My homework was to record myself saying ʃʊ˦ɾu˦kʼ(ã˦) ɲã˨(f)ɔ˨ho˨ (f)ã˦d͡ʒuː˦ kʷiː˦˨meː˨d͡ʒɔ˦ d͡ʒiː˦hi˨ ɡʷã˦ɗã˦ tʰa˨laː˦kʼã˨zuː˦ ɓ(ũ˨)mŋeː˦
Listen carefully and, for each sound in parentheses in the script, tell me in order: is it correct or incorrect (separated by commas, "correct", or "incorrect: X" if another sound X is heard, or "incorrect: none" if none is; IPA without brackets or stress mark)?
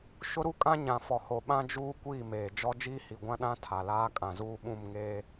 correct, correct, incorrect: ɓ, incorrect: ũ˦˨